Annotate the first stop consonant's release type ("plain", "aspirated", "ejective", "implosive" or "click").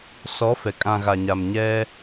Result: ejective